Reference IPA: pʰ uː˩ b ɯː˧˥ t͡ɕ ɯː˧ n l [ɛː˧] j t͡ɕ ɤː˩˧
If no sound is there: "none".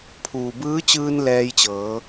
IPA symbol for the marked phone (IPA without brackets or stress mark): ɛː˧